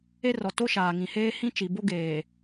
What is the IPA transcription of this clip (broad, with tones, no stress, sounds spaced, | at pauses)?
e˦ r ɔ˨ t o˦ ʃ aː˨ ŋ ĩ˨ h eː˦ h ĩ˦ t͡ʃ i˨ b o˦ ɡ eː˨